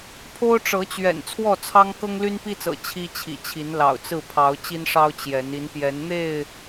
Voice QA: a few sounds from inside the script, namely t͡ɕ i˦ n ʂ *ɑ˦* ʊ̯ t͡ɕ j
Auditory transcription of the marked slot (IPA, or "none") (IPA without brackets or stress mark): ɑ˦